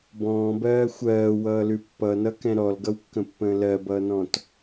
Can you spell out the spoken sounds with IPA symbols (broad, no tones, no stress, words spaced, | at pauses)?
bɔ̃ːbɜː xʷɜːwʌːlʉ pːʌnʌkɛ̃ ɾɔlɡʌwkːə̃pːə̃ː lɜbʌːnɔ̃t